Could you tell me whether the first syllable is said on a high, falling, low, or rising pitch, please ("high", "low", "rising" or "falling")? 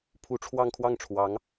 rising